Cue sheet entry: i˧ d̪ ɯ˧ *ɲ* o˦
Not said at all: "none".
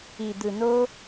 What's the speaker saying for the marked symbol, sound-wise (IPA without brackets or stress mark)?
n